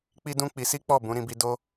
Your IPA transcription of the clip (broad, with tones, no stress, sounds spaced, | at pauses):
k͡p i˦ d ũ˦ k͡p i˧ s i˦ k͡p ɔ˦˨ b ũ˨˦ ɾ ĩ˧ b i˧ d o˦